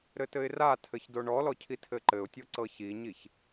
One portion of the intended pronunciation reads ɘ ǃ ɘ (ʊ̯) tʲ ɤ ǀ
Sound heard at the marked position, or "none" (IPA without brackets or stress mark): ʊ̯